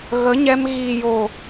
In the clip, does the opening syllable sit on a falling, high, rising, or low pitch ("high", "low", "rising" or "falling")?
rising